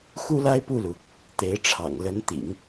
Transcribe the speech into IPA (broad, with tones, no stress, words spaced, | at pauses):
xu˥la˥ɪ̯pu˥˩lu˩ | t̪e˧˥ɪ̯ʈ͡ʂʰɑ̰˨˩ŋ lə˧˥nt̪ḭ˨˩˦ŋ